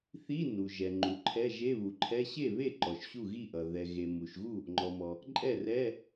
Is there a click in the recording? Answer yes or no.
yes